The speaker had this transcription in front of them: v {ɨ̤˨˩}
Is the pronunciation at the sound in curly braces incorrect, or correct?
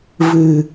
correct